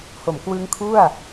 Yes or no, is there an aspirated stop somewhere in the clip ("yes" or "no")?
yes